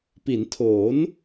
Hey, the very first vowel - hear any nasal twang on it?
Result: no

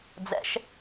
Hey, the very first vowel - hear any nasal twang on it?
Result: no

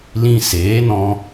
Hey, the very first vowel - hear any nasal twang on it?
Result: yes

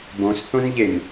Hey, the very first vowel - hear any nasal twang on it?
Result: yes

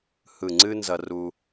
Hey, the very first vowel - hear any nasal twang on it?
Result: no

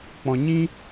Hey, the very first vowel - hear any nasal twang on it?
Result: yes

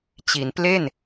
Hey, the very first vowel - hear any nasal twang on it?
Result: no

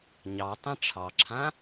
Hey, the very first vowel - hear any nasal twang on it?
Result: no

